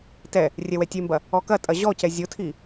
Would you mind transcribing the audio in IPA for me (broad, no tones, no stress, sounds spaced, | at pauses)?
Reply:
t ɛ | rʲ ɛ w ɛ tʲ e m b ɐ | ɔ k ɐ tʼ ɐ ʑ ɔ c ɛ zʲ o tʰ i